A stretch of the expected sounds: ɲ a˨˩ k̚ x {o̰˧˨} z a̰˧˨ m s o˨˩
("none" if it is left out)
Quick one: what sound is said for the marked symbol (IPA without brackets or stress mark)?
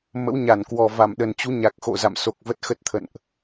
o̰˧˨